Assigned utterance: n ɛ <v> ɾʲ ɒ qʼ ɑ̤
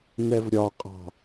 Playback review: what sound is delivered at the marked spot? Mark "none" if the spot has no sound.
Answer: v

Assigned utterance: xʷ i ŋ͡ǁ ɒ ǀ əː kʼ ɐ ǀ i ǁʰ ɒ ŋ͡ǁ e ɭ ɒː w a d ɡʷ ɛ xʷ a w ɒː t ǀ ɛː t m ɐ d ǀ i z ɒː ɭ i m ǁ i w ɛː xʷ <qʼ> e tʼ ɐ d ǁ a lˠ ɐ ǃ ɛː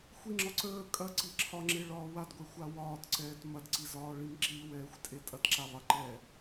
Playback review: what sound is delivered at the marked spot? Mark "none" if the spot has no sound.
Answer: tʼ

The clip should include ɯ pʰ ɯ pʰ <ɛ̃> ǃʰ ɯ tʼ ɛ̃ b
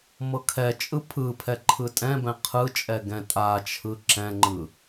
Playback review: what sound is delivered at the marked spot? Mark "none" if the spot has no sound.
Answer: ɛ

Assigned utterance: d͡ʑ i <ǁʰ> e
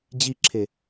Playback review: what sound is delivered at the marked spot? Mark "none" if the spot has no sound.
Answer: ǁʰ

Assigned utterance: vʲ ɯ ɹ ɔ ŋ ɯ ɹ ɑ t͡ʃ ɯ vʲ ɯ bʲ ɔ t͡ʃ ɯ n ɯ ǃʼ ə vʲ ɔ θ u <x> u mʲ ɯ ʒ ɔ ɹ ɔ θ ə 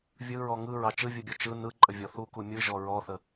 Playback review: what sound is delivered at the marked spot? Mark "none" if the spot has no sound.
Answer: k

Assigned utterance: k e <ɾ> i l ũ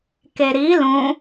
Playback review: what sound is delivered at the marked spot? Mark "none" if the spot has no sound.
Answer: ɾ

